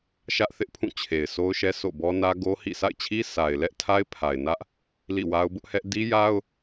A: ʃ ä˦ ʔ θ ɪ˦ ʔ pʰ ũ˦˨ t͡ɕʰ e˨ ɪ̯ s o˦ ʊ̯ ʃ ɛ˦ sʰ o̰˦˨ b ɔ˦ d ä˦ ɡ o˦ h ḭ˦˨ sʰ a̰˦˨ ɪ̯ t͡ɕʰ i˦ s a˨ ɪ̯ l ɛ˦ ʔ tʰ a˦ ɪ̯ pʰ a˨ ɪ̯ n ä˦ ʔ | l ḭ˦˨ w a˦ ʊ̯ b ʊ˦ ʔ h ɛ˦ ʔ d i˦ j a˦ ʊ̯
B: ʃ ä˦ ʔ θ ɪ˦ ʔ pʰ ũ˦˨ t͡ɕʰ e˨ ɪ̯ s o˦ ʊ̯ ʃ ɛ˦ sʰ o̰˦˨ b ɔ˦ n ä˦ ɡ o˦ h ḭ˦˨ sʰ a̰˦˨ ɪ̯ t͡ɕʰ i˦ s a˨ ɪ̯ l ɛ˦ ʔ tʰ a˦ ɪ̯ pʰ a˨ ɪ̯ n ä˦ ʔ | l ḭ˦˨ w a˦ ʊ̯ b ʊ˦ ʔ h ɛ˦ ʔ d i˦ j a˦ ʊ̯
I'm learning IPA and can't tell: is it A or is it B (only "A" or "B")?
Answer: B